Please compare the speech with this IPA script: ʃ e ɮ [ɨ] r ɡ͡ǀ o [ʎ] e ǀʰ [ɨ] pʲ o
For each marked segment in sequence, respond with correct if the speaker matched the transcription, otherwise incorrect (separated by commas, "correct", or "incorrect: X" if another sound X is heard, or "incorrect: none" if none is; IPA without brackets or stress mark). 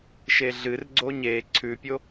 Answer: correct, incorrect: ɲ, incorrect: ʉ